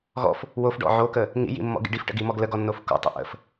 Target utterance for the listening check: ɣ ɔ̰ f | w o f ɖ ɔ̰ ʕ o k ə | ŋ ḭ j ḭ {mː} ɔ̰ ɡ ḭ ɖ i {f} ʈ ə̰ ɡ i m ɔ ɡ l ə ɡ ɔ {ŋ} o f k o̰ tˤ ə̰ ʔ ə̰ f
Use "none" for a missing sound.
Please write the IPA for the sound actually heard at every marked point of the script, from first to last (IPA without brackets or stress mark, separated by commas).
mː, f, nː